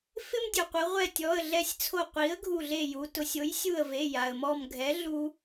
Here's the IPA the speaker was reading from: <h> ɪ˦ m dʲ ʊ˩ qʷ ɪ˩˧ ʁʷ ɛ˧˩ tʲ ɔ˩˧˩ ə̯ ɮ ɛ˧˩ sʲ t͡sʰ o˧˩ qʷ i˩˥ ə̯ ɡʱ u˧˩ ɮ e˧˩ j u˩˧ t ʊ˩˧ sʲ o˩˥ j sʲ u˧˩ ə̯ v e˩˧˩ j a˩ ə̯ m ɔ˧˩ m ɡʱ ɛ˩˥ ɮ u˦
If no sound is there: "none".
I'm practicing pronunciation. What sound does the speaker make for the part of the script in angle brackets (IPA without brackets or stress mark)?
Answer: f